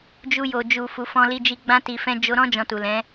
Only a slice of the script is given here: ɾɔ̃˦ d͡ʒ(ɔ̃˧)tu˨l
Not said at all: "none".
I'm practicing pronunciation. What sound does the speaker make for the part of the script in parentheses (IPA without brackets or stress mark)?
ɔ̃˧